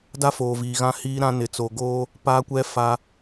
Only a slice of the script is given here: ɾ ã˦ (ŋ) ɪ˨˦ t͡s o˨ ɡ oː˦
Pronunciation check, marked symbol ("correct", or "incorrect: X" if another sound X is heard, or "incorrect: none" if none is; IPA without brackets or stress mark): incorrect: n